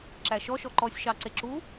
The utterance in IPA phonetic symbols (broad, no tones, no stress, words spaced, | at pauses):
ǁæʃɔʃɔ ǃɔsʲʃɑ ǀeǁu